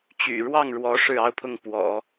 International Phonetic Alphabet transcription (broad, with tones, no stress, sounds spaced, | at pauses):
t͡ɕ y̰˨˩ ɻ w ɑ˥˩ ŋ ɻ w ɔ˧˥ ʂ ɻ̩˥˩ ɑ˥ ʊ̯ pʰ ʊ˥˩ ŋ p w ɔ̰˨˩˦